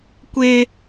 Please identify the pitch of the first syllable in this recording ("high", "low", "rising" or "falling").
high